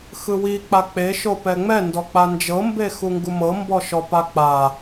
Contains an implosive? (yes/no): no